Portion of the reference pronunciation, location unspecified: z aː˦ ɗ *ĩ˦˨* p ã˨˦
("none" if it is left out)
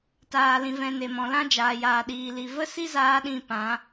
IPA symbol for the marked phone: ĩ˦˨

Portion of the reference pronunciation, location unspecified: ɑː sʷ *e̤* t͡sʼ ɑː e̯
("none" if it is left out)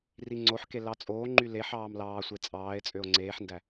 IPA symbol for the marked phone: e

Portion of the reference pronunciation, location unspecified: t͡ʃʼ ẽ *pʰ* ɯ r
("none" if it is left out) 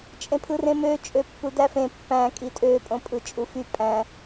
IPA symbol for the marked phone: pʰ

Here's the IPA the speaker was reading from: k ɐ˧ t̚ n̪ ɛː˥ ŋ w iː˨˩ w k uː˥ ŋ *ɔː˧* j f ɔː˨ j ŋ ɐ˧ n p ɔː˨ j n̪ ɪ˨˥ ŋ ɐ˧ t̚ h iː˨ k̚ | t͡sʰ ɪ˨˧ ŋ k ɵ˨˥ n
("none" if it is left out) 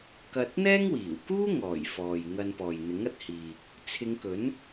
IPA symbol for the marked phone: ɔː˨˩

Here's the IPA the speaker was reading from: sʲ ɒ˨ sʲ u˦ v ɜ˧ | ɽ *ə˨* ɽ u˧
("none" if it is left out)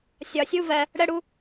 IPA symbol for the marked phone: ə˧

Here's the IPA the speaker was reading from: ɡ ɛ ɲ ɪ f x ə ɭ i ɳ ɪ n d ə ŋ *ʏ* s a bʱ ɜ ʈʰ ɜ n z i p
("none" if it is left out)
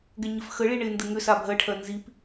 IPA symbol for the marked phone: ʏ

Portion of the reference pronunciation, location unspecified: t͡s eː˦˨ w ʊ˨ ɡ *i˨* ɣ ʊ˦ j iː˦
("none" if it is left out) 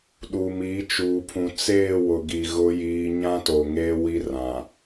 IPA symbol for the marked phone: i˨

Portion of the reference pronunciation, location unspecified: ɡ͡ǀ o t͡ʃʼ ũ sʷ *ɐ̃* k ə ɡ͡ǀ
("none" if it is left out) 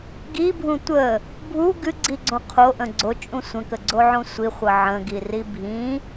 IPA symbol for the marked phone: ə̃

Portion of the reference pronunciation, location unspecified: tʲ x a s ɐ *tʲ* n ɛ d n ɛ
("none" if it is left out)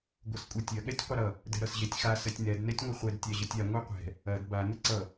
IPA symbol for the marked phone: tʲ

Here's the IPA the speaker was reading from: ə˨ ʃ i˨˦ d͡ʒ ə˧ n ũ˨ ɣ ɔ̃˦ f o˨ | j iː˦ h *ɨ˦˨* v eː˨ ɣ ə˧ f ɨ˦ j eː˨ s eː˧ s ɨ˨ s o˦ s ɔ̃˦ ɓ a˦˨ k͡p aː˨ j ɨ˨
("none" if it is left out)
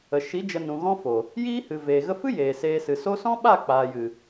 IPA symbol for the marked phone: ɨ˨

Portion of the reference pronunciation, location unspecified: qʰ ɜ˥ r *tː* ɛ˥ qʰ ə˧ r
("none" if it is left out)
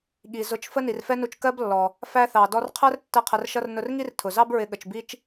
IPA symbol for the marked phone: tː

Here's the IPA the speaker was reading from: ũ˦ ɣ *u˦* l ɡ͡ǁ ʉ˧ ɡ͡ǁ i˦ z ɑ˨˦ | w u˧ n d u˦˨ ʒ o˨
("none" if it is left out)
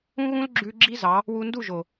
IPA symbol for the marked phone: ũ˦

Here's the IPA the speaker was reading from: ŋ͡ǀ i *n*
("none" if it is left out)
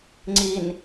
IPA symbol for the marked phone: n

